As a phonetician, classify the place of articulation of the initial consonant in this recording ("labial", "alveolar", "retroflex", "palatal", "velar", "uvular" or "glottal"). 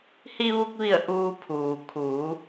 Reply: glottal